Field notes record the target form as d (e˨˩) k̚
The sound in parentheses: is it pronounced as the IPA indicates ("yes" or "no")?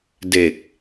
yes